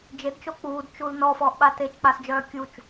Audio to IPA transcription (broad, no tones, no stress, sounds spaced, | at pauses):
d͡ʒ e d t͡ʃ o k͡p uː d t͡ʃ u l n ɔ f ɔː ʔ ɓ a t e t͡ʃ k͡p a s d͡ʒ œː kʲ u t͡ʃ